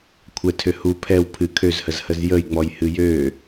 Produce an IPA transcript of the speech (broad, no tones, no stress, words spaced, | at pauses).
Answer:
kʷʰɛtʰø hu pʰɛw pʰɨ kʰøzhəzhəz jəjŋ͡mɔj hɨjø